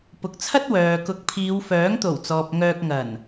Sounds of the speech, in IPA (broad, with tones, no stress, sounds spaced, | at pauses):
p ʊ˨˥ k̚ t͡sʰ ɐ˥ t̚ w œː˨ k ʊ˨˥ k̚ pʰ iː˨˧ w f œː˨˥ ŋ t̪ o˨˩ w t͡s ɔː˨ p̚ ŋ œː˧ k̚ ŋ ɐ˨˩ n